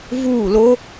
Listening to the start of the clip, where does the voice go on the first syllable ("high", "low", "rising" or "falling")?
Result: falling